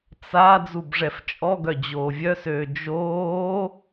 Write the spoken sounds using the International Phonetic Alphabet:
t͡s a d͡z u b ʐ ɛ f t͡ʃʼ ɔ ɡ œ d͡ʑ oː vʲ œ s øː d͡ʒ oː

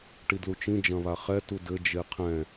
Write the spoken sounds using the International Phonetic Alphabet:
ʈ i d l u t͡ʃ ĩ d͡ʒ ɐ̃ β a χ ɛ t u d ɘ d͡ʒ e qʰ ɛ̃

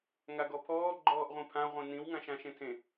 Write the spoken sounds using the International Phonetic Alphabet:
ŋ a ɡ ɔ pʰ ɔː ɡ͡ǃ ɔː ʔ ʁʷ ĩ pʰ ã ʁʷ ĩ n ĩ w ŋ ã ʃ ã ʃ ẽ tʰ ẽ

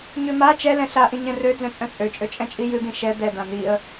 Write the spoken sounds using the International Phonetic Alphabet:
ɲ ø m a t͡ʃ ɛ l ɛ̃ ɬ a ʔ ĩ ɲ ɛ̃ r ø d͡z ɛ̃ t͡sʼ œ̃ t͡sʼ ø t͡ʃʼ ø t͡ʃʼ ɛ̃ t͡ʃʼ i j ɨ d̪ ĩ ʃ ɛ d̪ ɛ d̪ ã n̪ i ə̯

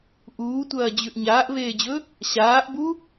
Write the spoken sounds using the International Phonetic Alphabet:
ʔ uː tʷ ɐː d͡ʑ ʉ ʔ ɲ aː ʔ v eː d͡ʑ ɵ | ɕ aː ʔ b u

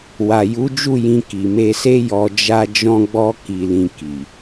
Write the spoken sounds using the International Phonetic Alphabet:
w a˨ j u˨˦ d͡ʒ u˦˨ j ĩ˧ k i˨ m e˧ s e˦ j ɔ˧ d͡ʒ a˦ d͡ʒ ɔ̃˦ ɡ͡b ɔ˦ k i˧ l ĩ˧ k i˨

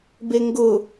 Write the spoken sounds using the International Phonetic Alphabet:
b e ŋ ɡ ʊ

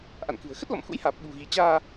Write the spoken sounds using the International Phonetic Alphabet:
ʔ a̰˧˨ n k ɨ̤˨˩ ə̯ x ə˦˥ t̚ l ɔ̰˧˨ m x ṵ˧˥ j h aː˨˩ p̚ ɓ ṳ˨˩ ɣ i˨˦ t͡ɕ aː˧

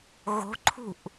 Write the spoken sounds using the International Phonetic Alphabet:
ɣ o̤ ǃʰ ṳ ʔ

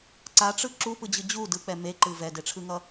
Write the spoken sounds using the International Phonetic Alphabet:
ǀ a ʈ͡ʂ ɯ ǁ u p ɯ d͡ʑ ɯ d͡ʑ u d ɯ k͡p ɛ m e ǃ ɯ v ɛ d e ʈ͡ʂʰ ɯ ŋ ʌ

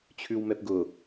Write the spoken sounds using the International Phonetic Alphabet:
t͡ɕʰ ʉ w m ɛ p ɡ ʊ

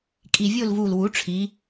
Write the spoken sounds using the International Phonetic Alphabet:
kʼ i˨˩ vʲ o˦˨ l v u˨˩ l w u˩˥ ʈ͡ʂʰ i˩˧

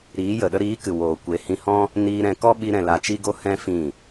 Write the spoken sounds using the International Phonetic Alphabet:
ɾ iː˨˦ j ə˨ ɗ ə˧ ɾ iː˨˦ k ɨ˨ w oː˨ kʷ e˨˦ h ĩ˧ h ɔ̃˦ | n iː˧ ɾ ɛ̃˧ k ɔ˦ ɓ i˦ ɾ ɛ̃˧ l a˧ t͡ʃ i˦ ɡ o˦ h ɛ̃˦ f ĩ˦˨

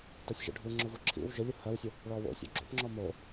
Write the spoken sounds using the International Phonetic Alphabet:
t ɤ sʲ ʒ o̰ ɖʱ ɯ ŋ͡ǁ ʊ v ʊ ǁʰ ḭ w ʒ ʊ lʲ ʊ h ɜ w sʲ ʊ | ɭ ɔ w o̰ sʲ o̰ ɡ͡ǁ o̰ p ŋ͡ǁ ɔ m o

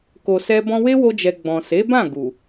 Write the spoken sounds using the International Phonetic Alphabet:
k o˨ s ɛ˧ b ɔ̃˧ w e˦ w o˧ d͡ʒ ɛ˨ ɡ͡b ɔ̃˨ s e˨˦ b ã˦˨ ɡ u˨

